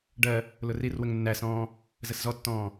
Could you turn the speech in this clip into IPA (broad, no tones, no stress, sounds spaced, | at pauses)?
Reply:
ɖ ɜ | l ʊ r i r w ə ŋ nː æ s ɔ̃ː | z ə s z ɔ tː ɔ̃ː